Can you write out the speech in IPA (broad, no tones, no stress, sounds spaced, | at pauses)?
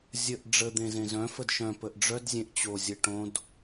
zʲ ə ʔ ɖ͡ʐ ə d̪ ẽ z ẽ z œ̃ f ə d ʃ œ̃ p ə ʔ ɖ͡ʐ œ d zʲ ẽ ʔ t͡ɕ o zʲ ə ʈ õ d